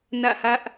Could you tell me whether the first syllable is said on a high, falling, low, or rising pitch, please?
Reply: falling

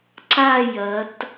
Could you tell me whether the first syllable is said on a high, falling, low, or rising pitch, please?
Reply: falling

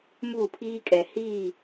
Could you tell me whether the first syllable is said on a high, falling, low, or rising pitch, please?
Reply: falling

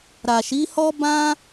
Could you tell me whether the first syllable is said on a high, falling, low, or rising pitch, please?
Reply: low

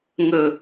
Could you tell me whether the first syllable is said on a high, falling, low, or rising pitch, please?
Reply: low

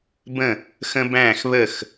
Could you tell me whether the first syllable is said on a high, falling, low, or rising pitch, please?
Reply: falling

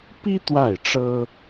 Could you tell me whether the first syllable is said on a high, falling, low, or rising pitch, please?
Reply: high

